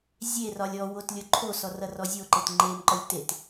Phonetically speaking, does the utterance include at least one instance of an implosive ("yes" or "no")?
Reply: no